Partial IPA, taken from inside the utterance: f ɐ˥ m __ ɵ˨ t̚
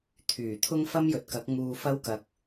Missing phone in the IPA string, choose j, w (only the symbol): j